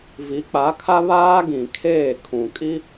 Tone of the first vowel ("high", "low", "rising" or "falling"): rising